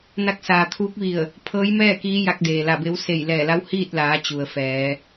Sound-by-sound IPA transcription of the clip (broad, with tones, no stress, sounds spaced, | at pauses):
n a˧ k̚ s aː˩ t̪ʰ uː˧˥ k̚ ʋ i˧˩ ə̯ | pʰ ɤː˧˥ j m ɛː˥˨ k iː˧˥ j a˧ k̚ d eː˩ l a˧˩ b e˧˥ w s e˧˩ j l ɛː˧˩ l a˧˥ w h iː˥˨ t̚ l aː˩˧ t͡ɕ u˩ ə̯ f ɛː˩˧